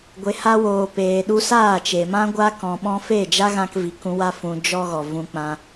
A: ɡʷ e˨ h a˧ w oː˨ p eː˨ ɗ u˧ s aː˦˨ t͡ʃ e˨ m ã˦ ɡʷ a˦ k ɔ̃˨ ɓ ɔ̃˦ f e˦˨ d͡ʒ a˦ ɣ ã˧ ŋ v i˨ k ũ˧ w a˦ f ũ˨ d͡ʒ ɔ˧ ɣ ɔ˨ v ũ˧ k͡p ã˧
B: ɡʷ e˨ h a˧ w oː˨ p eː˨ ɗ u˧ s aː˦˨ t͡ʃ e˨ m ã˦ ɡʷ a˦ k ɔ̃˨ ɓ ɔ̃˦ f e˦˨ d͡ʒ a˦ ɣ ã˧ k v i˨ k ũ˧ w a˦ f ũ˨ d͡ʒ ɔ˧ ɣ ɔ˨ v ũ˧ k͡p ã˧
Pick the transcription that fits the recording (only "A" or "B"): B